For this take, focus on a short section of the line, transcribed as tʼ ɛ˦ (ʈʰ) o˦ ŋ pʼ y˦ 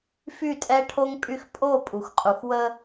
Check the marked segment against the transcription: correct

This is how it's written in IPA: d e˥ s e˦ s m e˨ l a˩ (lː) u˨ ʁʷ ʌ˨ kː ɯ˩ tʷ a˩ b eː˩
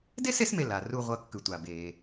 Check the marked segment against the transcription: incorrect: r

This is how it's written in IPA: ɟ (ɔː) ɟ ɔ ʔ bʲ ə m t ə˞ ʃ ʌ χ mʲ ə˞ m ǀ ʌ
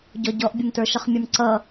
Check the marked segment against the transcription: incorrect: ɔ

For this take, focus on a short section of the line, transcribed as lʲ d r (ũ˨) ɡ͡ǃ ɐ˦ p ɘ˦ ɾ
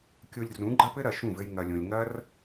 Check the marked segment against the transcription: incorrect: ũ˨˦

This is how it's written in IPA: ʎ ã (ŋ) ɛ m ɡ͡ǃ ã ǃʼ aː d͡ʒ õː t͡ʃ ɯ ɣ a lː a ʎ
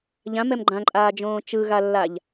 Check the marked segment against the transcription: incorrect: m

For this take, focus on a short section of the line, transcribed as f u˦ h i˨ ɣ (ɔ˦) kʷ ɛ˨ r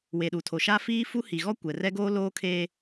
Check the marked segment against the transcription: correct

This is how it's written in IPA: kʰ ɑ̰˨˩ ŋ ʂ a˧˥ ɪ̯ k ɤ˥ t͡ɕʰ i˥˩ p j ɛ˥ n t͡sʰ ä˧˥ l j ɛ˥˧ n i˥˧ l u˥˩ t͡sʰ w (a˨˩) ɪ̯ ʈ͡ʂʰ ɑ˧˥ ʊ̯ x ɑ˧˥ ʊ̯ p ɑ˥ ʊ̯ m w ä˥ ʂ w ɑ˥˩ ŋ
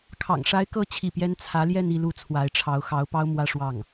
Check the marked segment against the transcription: incorrect: a˧˥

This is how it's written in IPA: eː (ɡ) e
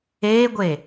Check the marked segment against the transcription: incorrect: ɡʷ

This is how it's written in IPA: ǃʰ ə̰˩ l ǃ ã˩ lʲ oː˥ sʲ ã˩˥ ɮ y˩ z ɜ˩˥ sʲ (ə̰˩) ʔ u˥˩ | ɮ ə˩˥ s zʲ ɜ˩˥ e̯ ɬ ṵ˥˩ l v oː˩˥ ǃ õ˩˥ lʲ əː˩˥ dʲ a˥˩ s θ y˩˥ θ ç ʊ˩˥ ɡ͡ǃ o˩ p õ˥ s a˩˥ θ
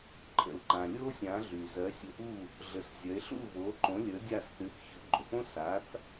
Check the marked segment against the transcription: incorrect: ə̰˧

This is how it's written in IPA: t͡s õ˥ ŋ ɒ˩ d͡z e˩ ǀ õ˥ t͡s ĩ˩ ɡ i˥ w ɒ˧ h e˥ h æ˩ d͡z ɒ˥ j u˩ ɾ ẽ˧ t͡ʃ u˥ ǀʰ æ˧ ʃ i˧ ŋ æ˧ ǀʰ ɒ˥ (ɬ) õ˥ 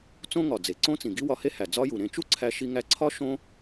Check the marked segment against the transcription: incorrect: ʃ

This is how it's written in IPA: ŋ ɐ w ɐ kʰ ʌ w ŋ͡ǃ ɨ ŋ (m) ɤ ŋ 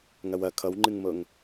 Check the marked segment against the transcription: correct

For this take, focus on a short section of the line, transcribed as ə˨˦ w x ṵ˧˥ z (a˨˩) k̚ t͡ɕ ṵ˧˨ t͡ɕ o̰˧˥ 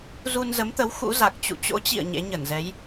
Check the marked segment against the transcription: correct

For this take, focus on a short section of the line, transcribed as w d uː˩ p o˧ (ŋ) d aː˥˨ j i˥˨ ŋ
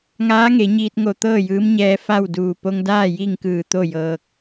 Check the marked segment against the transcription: correct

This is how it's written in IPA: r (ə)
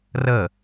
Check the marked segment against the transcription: correct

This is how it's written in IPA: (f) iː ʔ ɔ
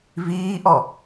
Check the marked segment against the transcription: incorrect: v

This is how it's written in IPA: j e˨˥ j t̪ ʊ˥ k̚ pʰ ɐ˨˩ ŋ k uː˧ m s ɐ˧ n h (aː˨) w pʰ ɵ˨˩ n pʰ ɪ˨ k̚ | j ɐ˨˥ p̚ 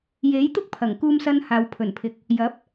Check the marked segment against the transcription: correct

